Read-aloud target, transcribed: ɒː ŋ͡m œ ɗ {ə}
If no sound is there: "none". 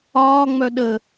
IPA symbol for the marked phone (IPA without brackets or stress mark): ə